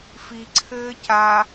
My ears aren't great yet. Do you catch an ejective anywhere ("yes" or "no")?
no